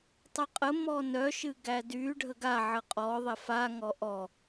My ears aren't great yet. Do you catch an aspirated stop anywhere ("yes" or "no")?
no